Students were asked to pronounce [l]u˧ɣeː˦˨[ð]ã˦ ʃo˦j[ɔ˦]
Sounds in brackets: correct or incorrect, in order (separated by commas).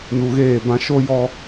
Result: incorrect, incorrect, correct